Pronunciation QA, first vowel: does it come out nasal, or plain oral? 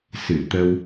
oral